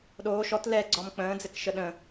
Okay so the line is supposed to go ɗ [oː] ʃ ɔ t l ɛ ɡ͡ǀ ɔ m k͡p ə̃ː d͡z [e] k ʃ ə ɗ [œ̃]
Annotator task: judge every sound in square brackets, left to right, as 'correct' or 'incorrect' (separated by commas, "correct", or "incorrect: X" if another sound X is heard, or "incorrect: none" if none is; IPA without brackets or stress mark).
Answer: correct, incorrect: ɘ, incorrect: ə̃